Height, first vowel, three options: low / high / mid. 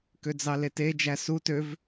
mid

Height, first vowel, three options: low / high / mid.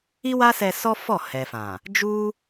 high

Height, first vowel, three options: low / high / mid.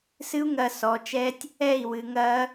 high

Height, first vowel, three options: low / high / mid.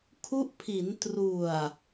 high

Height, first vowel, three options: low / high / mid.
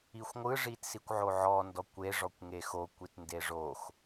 high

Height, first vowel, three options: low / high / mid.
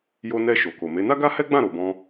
mid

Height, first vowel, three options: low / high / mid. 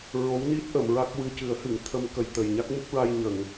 mid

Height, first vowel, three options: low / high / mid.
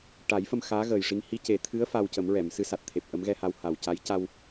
low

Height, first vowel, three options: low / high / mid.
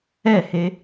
mid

